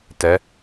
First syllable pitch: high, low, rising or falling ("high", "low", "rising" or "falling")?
rising